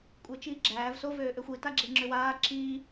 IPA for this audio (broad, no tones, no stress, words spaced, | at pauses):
kʷʼet͡ʃiːɡ͡ǁæːv so vøːʔøxʷi taɡ͡ǁeŋ͡ǁʏwaː ǁi